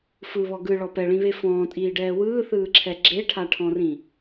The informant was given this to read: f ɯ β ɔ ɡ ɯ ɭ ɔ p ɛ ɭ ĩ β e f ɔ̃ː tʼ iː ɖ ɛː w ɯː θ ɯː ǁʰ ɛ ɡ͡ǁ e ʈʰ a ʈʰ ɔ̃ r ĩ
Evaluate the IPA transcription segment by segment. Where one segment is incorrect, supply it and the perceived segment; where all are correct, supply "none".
none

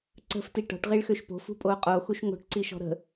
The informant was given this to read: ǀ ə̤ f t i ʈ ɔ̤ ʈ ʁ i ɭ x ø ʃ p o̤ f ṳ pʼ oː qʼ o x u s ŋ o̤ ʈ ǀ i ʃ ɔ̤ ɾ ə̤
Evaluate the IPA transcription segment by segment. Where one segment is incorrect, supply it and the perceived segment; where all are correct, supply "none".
s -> ʃ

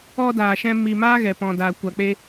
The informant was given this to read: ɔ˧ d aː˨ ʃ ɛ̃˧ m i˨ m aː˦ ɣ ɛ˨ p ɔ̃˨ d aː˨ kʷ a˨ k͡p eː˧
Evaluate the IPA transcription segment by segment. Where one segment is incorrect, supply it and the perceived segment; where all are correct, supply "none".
none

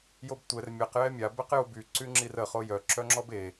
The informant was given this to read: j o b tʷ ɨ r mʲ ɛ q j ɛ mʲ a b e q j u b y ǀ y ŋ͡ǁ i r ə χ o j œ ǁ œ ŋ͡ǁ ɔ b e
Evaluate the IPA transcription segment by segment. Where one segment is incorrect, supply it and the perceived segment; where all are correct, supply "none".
ɨ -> ɛ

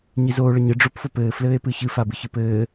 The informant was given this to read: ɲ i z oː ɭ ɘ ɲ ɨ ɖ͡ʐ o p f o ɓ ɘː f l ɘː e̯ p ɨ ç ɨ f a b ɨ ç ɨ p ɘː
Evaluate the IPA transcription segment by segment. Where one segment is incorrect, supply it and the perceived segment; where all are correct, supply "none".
ɓ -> p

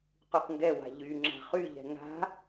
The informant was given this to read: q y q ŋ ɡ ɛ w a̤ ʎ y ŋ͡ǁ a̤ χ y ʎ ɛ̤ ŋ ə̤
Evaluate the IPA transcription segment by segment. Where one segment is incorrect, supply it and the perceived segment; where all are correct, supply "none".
ə̤ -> a̤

